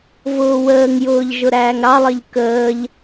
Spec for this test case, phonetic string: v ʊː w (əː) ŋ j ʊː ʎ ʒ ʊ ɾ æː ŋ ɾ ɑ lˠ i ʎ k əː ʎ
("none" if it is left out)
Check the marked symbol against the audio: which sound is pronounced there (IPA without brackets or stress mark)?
əː